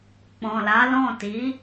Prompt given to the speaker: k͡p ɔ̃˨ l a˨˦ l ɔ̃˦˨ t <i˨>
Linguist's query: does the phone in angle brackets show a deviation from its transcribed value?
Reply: yes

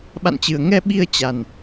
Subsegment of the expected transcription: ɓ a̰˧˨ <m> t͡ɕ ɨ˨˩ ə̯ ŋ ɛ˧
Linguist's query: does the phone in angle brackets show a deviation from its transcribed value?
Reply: yes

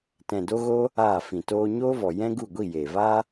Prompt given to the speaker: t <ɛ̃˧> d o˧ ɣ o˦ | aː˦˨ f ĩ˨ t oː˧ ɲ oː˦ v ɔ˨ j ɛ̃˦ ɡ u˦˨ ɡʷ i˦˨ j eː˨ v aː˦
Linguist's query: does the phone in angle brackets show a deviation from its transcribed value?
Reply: yes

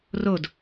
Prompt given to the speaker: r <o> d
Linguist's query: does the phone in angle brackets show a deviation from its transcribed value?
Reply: no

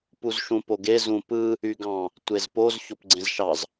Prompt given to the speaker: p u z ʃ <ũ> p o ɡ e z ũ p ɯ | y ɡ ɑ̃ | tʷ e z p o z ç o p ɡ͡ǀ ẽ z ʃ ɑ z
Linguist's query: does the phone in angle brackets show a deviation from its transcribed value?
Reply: no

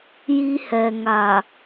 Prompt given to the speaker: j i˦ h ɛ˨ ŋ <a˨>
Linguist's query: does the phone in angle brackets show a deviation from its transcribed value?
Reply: no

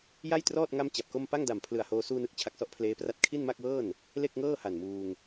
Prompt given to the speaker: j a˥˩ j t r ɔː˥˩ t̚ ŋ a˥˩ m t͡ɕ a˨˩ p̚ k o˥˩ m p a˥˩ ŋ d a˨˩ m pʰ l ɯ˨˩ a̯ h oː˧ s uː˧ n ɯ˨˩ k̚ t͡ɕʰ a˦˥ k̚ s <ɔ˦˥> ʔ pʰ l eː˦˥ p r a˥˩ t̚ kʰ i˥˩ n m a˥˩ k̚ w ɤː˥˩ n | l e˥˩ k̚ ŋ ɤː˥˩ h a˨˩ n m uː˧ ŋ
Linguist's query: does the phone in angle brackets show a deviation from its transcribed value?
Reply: no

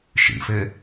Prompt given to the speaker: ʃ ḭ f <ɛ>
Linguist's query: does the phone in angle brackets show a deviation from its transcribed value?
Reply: yes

